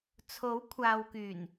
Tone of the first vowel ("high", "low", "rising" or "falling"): rising